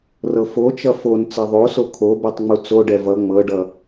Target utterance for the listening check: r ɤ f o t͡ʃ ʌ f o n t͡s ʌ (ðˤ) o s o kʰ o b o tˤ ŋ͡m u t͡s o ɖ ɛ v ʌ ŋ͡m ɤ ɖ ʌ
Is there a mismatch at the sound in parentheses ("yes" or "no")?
no